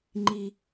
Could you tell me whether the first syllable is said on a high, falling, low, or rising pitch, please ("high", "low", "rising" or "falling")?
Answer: low